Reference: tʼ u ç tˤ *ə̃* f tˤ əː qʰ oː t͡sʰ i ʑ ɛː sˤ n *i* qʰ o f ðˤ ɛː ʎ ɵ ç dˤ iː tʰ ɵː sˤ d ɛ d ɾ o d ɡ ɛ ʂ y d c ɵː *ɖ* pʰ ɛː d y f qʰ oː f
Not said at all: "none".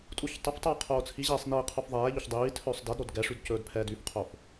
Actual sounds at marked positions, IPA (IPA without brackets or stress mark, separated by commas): ə, iː, d